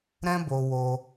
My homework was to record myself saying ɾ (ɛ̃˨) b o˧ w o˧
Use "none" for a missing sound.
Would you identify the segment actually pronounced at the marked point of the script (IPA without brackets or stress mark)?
ɛ̃˦